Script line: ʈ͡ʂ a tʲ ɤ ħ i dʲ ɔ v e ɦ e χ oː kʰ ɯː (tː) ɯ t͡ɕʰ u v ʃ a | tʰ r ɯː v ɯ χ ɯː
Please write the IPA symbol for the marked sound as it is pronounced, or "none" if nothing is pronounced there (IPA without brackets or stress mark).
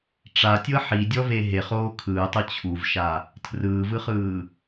tˤ